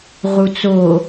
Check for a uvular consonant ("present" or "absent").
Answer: present